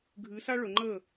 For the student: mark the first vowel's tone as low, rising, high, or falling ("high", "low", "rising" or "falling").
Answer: rising